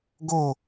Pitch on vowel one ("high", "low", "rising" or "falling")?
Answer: falling